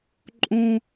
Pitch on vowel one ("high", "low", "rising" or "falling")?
high